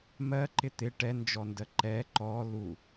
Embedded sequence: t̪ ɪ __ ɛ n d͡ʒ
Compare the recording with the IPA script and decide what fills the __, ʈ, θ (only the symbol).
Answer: ʈ